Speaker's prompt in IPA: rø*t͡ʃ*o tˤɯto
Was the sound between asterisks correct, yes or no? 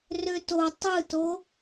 no